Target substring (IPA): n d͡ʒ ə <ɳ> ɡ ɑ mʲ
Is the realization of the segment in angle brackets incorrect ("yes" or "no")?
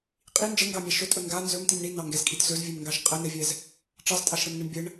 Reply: yes